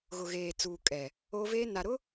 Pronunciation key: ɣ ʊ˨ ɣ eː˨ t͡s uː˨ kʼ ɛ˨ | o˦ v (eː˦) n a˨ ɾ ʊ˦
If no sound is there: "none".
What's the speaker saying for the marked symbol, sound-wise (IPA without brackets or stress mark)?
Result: eː˦